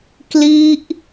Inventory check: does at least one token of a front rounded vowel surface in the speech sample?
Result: no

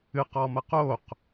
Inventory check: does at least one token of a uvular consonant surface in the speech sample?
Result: yes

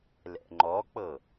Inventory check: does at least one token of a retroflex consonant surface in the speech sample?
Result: no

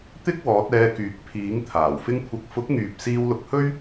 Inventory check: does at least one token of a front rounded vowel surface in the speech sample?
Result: yes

